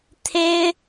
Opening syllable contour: high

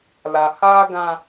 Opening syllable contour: low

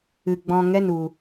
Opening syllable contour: low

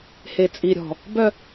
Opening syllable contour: low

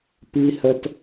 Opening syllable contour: high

